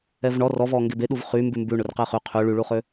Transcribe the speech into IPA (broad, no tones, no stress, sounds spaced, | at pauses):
ɛ v ɳ ɔ r ɔ v ɔ ŋ ɡ e b e ɗ u v χ y m b ʉ m b ʉ ɳ ɵ r q e χ y qʰ y ɭ y ɭ u χ ø